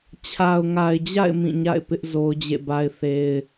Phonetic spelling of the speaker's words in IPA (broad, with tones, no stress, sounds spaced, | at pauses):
t͡ɕʰ a˨ ʊ̯ ŋ a˨ ɪ̯ d͡ʑ a̰˦˨ ɪ̯ m ĩ˦˨ ɲ a̰˦˨ ɪ̯ p ɪ˦ ʔ z o˦ ʊ̯ d͡ʑ ḛ˦˨ b a˦ ɪ̯ θ e˦ ɪ̯